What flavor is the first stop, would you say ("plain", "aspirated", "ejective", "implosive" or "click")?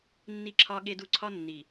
click